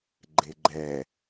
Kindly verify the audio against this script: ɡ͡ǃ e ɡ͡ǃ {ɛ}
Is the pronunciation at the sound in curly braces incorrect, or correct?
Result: correct